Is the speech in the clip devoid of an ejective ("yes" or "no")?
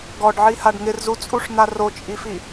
no